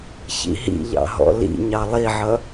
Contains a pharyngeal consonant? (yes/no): yes